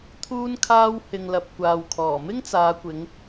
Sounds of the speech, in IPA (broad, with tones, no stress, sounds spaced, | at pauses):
t̪ʰ uː˥ n kʰ aː˥ w h ɪ˧ ŋ l ɐ˧ p̚ kʷ aː˨ w kʰ ɔː˨˩ m ɪ˥ ŋ t͡s aː˨˧ kʷ ɪ˨˧ ŋ